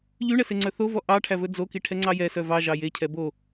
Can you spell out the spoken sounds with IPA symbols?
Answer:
ʎ y ɳ ɛ s e ŋ͡ǀ œ θ o v ɔ ʔ ɑ ʈʰ æ v ɵ d͡z o k i ʈʰ ɛ ŋ͡ǀ ɑ j ɛ s œ v ɑ ʒ ɑ j e cʰ ɛ b o

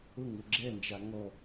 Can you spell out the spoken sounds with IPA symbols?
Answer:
ʊ ŋ ʊ ɡ͡ǁ ɛ n d͡ʒ a ŋ ɔ

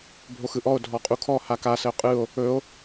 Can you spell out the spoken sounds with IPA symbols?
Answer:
bʱ o x ɯ ʔ ɔ o̯ dʱ ɔ qʼ u kʰ ɔ h a k a s ə o̯ qʼ ɯ o̯ | ɵ o̯

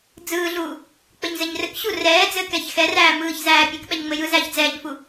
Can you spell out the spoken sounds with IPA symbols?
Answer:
d͡z ɯː ɮ uː | k͡p ɘ ɲ z ɘ ɲ r ɘ k ɕ u r ɛː d͡z ɘː k ɛ ç x ɛ r æː m ɯː ç z æː pʲ ɘ k ɓ ɛ ɲ ŋ͡m ɘ j ɯ z æː ç d͡z ɛː ɲ f u

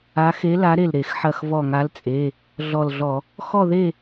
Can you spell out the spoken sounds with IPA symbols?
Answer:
a˨˥ x e˨˥ l a˨˥ ɾ e˧˩ l ɾ e˧˩˧ x ħ ɐ˧˩ x v ɔ˧˩ ŋ a˨˥ l t͡sʼ e˩˧˩ | ɮ ɔ˧˩ l ɮ ɔ˧˩˧ | x ɔ˥˨ ð e˥˨

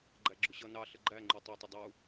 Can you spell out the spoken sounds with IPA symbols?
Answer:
ɡ͡ǃ æ ɡ͡ǁ ʊ ɕ ʌ n ɑ ɬ ə ɡ͡ǃ æ ŋ͡ǃ u tˤ ɛ tˤ ʌ dˤ u

